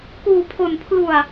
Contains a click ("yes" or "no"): no